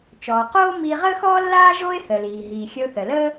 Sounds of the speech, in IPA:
t͡ʃɔː˩ qoː˥ miː˧ʁəː˥xɔː˥ lːaː˥ʒo˥ɪ̯ θə˩liː˩ɦiː˩ xʲə˧ʊ̯ θə˩ləː˥

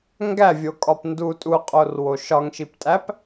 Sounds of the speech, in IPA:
ŋɡævʲokʼɒp ndu tʼuqʼorwo ʃɒŋʃiptʼæp

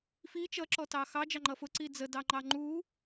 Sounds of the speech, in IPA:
fi t͡ʃʌǁɔtɑ xɑ d͡ʒɑŋ͡ǃʌfʊǀi d͡zədɑŋ͡ǃɑ ŋ͡ǃu

